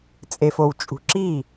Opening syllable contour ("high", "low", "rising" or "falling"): low